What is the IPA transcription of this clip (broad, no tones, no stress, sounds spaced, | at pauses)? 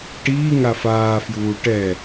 ʈ iː ŋ a f aː f j uː ʈ ɛ